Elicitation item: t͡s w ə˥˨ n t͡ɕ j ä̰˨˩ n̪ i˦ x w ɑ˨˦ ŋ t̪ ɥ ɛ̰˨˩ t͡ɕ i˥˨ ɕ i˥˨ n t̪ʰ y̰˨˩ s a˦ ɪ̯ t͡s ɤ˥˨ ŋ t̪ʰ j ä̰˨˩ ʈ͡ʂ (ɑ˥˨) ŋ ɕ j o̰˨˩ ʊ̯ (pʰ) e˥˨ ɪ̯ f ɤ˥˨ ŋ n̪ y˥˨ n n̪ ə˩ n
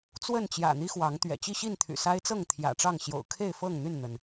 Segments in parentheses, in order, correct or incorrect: correct, incorrect

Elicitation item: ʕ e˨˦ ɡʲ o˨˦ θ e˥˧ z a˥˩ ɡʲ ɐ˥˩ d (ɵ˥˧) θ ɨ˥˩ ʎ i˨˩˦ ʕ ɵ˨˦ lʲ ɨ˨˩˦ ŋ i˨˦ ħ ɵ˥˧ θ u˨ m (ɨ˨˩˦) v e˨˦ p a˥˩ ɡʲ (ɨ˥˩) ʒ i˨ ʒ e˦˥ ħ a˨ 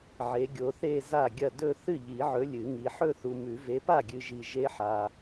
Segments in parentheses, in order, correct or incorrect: correct, incorrect, incorrect

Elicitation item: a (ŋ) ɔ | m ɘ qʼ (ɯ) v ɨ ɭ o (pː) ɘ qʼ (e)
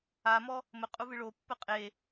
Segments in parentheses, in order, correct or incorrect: incorrect, incorrect, correct, correct

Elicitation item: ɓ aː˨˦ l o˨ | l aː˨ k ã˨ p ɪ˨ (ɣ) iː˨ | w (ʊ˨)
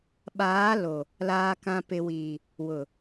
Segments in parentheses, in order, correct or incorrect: incorrect, correct

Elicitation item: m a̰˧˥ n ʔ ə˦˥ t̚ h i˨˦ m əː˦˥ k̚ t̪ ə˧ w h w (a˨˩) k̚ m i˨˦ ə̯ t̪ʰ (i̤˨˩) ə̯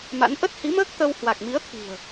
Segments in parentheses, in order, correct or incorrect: correct, correct

